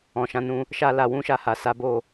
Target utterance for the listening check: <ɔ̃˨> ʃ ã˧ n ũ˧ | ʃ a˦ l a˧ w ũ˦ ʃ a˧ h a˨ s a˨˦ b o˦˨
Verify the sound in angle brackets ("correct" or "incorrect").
correct